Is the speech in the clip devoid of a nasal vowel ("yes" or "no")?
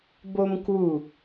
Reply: yes